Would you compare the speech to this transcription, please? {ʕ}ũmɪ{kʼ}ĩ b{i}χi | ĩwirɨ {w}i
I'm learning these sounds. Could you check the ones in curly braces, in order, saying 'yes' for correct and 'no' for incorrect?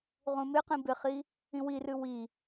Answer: no, no, no, yes

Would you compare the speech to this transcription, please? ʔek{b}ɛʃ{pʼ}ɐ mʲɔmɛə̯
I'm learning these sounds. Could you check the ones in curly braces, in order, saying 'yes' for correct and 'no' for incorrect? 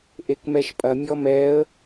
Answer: no, yes

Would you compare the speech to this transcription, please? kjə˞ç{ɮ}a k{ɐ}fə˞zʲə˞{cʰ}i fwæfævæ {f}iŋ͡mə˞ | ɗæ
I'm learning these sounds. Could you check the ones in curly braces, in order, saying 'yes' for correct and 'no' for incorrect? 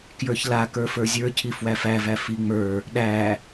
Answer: no, no, yes, yes

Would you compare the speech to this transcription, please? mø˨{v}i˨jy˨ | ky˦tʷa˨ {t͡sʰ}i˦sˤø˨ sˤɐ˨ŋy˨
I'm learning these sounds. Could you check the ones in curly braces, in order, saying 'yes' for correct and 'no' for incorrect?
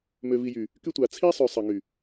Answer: yes, yes

